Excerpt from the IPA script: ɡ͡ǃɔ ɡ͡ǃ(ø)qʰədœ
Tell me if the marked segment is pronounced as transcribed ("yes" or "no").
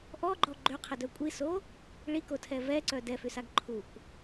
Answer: yes